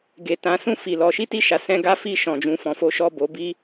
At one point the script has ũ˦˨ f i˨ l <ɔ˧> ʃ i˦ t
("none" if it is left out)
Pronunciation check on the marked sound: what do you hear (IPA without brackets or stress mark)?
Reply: ɔ˧